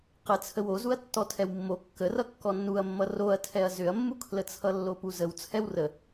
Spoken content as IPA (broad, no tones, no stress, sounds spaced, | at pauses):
q ə t͡sʰ ə w o z u ɐ̯ tː ɔ tʰ ɛ w mː o kː ə r ʌ kː ɔ nː u ɐ̯ mː ʌ r o ɐ̯ tʰ ɛ ɐ̯ z ʏ ɐ̯ mː u kʰ l ə t͡sʰ ʌ lː o p u z ə w t͡sʰ ɛ w r ə